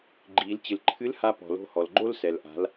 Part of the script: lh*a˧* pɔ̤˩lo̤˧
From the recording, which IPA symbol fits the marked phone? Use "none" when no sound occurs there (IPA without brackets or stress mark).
a˧